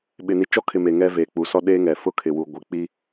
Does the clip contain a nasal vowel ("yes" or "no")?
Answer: no